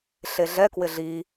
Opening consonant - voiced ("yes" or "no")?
no